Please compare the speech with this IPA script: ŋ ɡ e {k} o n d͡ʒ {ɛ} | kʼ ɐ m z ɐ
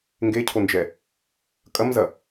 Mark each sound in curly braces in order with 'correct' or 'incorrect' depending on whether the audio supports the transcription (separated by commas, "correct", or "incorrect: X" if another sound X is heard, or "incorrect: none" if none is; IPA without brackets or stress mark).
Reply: incorrect: cʰ, correct